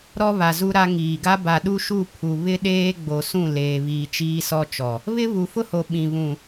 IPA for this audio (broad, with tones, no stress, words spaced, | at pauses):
ɾɔ˦βa˨zu˦ɾa˦ ŋiː˨ɡa˦ ba˨ɗu˦ʃu˦˨ pʰu˨βɪ˦ ɗeː˦ɡ͡bo˨sũ˦˨ leː˨βiː˨ t͡ʃiː˦sɔ˦t͡ʃɔ˨ | βɪ˦βu˨fʊ˦ho˨ ɓĩ˨ βũ˨